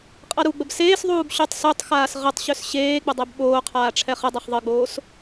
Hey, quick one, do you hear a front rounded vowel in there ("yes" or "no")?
yes